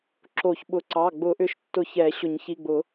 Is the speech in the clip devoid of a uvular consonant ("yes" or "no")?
yes